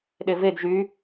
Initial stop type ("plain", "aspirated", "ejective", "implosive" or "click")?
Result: implosive